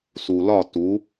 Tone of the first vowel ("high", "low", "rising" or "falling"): low